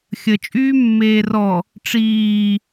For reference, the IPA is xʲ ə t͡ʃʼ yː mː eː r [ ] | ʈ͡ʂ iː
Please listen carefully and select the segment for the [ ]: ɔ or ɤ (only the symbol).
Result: ɔ